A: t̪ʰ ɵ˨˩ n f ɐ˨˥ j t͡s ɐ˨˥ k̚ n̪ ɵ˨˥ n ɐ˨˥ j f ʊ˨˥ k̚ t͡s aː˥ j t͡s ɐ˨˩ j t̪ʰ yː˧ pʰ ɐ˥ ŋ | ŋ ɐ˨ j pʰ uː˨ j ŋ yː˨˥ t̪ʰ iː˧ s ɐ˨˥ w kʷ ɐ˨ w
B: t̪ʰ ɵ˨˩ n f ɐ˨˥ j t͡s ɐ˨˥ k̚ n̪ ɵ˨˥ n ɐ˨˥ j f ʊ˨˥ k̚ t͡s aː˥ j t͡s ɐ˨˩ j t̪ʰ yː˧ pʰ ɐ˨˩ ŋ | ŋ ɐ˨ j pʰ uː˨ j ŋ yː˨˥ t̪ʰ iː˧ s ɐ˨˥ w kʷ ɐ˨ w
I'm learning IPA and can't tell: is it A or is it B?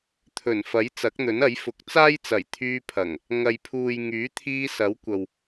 B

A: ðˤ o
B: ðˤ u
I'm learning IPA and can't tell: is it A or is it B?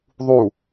B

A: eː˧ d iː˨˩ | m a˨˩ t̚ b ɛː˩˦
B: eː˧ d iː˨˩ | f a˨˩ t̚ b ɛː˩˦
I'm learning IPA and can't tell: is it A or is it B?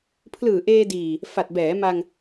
B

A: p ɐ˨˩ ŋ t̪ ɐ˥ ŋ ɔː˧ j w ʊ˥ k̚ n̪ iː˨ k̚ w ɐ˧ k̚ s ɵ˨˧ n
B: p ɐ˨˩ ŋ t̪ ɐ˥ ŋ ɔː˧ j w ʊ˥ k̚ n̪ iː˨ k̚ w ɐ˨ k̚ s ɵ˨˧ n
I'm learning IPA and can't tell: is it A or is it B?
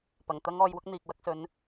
A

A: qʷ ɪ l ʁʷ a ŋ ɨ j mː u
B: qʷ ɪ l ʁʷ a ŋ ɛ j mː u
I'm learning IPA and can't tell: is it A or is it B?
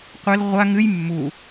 A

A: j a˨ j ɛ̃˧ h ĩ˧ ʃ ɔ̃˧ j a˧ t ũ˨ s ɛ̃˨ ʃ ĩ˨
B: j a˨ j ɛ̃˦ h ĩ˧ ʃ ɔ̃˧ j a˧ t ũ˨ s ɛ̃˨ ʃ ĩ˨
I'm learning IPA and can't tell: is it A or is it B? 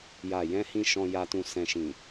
A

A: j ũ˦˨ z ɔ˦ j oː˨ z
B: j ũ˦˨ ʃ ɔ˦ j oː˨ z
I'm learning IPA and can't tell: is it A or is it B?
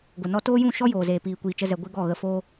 B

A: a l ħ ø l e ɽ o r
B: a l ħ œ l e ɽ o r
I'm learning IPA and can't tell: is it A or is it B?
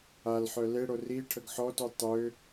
B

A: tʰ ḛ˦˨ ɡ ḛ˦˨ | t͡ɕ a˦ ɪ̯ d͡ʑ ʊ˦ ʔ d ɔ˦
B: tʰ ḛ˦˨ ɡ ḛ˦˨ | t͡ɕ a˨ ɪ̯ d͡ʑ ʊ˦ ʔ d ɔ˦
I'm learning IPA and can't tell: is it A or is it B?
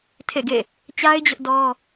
A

